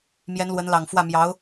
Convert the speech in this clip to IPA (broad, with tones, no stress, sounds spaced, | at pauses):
m j ɛ˧˥ n l w ə˧˥ n l ɑ˨˩ ŋ f w ä˥˩ m j ɑ˧˥ ʊ̯